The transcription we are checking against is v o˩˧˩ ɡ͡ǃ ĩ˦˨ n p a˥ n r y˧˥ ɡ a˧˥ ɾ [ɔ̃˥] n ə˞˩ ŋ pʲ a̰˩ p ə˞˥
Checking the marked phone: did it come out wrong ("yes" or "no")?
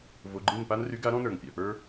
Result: no